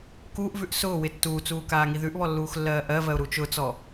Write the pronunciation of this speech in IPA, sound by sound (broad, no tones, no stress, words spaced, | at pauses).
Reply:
kuːʔvʉʔ sʊːwɪ tːuːt͡suːkaːŋi ðʉʔβɔlːuːxlːɜː ʔɜvɜʊ̯ɾu t͡ʃʊt͡sɔ